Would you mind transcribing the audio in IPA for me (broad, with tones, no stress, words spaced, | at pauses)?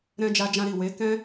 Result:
ɾɛ̃˦ d͡ʒa˧d͡ʒã˧ɾi˨ we˨˦kɛ̃˦